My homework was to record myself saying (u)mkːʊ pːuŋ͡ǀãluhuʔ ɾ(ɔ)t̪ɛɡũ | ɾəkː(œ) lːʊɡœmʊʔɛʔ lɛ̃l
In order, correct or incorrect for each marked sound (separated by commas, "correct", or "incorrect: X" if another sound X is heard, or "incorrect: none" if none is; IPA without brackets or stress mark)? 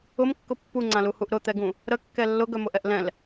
incorrect: ʊ, incorrect: ʊ, incorrect: ɛ